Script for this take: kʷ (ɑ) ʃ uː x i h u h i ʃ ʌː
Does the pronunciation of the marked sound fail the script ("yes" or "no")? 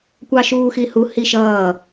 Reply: no